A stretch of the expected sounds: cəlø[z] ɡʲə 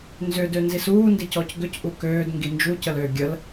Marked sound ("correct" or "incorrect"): incorrect